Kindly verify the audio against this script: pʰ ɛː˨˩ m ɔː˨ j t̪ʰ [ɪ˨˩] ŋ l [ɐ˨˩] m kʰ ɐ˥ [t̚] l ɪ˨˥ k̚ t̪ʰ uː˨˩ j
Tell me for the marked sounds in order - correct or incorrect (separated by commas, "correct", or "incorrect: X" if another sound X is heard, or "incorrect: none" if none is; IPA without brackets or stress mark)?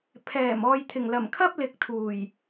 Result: correct, correct, incorrect: p̚